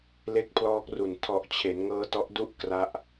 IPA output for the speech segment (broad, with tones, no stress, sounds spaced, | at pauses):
l e˦˥ k̚ pʰ l ɔː˦˥ k̚ r u˨˩ n tʰ ɔ˨˩ ʔ t͡ɕʰ e˩˦ n ŋ ɤː˦˥ t ɔ˦˥ ʔ d u˥˩ ʔ k r a˦˥ ʔ